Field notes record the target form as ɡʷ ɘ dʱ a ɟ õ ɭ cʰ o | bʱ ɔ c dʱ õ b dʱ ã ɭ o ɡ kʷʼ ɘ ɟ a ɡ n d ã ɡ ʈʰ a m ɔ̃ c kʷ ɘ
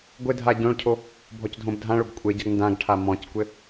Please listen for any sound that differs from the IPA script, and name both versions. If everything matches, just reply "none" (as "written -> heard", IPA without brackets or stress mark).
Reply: none